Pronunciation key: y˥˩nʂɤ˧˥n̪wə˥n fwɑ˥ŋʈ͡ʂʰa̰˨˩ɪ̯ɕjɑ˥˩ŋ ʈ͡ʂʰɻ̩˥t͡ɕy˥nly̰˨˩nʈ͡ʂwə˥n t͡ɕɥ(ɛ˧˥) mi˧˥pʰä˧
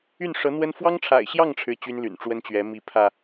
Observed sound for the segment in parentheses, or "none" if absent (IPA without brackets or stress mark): ɛ˧˥